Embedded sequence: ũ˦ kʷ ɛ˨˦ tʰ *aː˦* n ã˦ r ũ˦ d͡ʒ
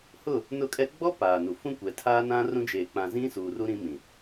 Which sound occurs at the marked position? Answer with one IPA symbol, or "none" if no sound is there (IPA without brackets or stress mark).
aː˦